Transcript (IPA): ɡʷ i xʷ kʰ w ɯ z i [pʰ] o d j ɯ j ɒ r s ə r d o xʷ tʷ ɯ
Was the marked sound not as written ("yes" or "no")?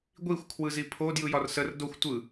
no